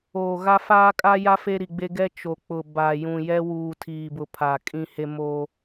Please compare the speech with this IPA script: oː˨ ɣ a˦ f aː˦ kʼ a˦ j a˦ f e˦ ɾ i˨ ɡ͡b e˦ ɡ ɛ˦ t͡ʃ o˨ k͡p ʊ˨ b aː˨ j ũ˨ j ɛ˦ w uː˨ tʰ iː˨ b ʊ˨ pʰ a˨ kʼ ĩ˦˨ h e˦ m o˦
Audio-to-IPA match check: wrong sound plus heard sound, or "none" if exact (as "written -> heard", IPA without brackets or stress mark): none